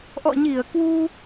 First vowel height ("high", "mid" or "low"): mid